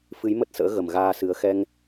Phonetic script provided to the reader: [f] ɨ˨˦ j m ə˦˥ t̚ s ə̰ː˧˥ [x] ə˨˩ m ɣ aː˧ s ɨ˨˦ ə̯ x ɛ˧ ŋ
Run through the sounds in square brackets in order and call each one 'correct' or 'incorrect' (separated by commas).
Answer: correct, incorrect